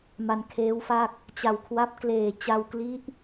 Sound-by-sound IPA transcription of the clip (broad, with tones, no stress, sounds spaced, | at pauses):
m a˧ n kʰ eː˦˥ w f a˥˩ k̚ | t͡ɕ a˨˩ w kʰ w a˦˥ p̚ k l eː˨˩ t͡ɕ a˧ w k l i˦˥ ʔ